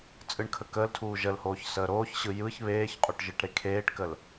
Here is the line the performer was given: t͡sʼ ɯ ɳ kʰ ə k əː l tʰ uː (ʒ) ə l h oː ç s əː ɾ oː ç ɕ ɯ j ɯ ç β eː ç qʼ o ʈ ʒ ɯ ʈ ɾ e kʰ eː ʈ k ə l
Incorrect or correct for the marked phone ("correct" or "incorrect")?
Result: correct